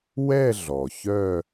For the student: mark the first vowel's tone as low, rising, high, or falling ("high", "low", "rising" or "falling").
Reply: falling